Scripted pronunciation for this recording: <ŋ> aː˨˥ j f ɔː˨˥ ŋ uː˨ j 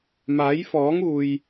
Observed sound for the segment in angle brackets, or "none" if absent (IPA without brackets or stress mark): m